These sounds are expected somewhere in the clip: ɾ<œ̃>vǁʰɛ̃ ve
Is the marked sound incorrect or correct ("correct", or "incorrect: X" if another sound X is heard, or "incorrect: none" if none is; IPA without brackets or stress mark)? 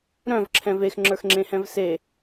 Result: correct